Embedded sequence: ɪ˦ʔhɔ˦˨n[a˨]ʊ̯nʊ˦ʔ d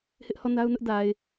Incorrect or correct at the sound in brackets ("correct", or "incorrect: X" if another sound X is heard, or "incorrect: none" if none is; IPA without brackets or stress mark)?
incorrect: a˦